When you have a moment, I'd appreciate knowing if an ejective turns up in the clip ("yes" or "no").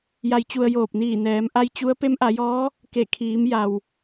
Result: no